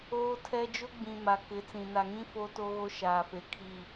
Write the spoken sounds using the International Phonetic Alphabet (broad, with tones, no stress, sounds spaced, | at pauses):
oː˦ tʰ ɛ˦ d͡ʒ ʊ˦ ɡ͡b ĩ˨ m a˨ k ɪ˨˦ t͡s ĩ˨ n a˨ ŋ ĩ˦ f oː˦ t o˦ ɣ o˦ ʃ aː˨ f e˨ kʰ i˦˨